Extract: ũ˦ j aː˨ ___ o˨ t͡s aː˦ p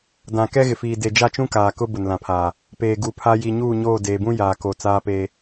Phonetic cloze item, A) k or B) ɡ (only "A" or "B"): A